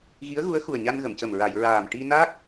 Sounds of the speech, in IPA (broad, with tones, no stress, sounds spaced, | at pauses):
ɣ i˧˥ ə̯ ɣ u˧˥ ə̯ x u˨˩ ə̯ ɲ a˧ n ɣ ə˨˩˨ m c ə˨˩ m ɹ a˨˩˨ j ɹ aː˨˩ m ʈ i˧ n a˦˥ k̚